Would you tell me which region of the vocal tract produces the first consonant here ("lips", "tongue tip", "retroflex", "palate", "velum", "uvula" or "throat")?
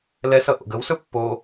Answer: tongue tip